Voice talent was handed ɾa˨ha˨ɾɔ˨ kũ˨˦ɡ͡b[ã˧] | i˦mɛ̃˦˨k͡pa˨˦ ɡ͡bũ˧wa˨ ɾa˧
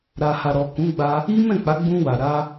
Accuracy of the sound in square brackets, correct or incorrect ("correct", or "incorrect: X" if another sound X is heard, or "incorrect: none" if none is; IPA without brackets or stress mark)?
incorrect: a˧